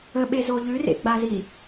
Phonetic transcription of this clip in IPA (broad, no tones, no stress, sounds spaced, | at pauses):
ə ɓ e z o ʎ ʉ r ḛ ɡ͡b a z i